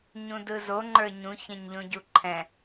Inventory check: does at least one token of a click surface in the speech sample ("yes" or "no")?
yes